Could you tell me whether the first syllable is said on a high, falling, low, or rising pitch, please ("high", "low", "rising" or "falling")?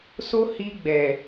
high